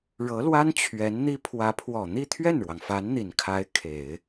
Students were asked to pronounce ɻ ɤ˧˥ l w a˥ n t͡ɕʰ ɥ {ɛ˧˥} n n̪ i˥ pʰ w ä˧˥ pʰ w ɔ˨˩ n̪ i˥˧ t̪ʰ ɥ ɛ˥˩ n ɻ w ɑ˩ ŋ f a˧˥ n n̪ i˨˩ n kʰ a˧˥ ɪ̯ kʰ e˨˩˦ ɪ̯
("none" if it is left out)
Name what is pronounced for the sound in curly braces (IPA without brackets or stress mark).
ɛ˧˥